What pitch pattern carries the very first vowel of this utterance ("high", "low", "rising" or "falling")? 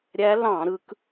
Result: rising